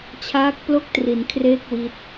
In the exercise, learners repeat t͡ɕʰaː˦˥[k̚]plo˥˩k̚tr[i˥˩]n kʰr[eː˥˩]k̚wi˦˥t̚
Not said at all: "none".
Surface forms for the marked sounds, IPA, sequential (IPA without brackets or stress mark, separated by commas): k̚, i˩˦, eː˥˩